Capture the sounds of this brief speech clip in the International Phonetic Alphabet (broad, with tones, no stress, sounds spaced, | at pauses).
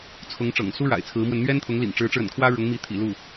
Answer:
t͡sʰ ʊ˧˥ ŋ ʈ͡ʂ ɤ̰˨˩ ŋ s u˥ ɻ a̰˨˩ ɪ̯ t͡sʰ ɹ̩˧˥ m w ə˧ n n̪ ɥ ɛ˥ n t̪ʰ ʊ˧˥ ŋ l ḭ˨˩ ŋ ʈ͡ʂ ɻ̩˧˥ ʈ͡ʂ ɻ̩˧ ə̰˨˩ n kʰ w ä˥ ɻ ʊ˧˥ ŋ m i˧˥ t̪ʰ ḭ˨˩ l u˥˩